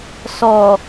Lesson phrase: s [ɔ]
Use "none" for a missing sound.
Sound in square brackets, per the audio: ɔ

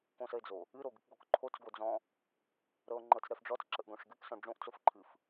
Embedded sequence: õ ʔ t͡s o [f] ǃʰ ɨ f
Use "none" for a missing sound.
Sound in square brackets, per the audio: f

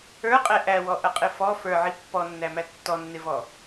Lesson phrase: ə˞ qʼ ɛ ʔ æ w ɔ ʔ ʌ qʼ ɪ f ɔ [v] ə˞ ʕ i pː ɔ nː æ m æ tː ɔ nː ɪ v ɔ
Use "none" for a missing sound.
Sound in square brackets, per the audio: f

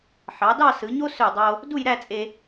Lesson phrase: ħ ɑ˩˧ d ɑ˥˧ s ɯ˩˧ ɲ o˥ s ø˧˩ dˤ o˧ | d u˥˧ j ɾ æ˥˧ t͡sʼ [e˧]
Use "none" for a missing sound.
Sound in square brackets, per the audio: e˧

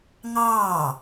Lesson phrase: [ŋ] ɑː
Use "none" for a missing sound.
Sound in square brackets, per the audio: ŋ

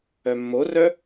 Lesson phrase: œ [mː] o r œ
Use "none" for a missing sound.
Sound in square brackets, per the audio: mː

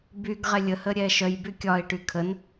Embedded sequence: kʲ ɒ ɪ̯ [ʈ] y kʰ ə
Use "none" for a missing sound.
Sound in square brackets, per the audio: ʈ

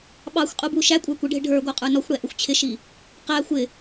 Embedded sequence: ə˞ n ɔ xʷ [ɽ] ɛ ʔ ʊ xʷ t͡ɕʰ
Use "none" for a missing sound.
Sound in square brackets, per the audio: ɽ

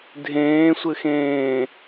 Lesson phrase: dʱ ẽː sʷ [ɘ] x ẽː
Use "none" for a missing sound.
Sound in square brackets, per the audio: ɘ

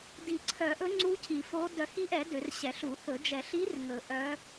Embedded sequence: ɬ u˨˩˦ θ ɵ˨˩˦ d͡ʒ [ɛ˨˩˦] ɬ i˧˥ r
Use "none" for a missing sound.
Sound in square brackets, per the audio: ɛ˨˩˦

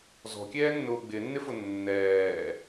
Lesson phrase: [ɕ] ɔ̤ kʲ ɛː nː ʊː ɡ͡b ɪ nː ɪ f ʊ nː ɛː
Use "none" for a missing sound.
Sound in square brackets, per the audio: z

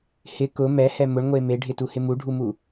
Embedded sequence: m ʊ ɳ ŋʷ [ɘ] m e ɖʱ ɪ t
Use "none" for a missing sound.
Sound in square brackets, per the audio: e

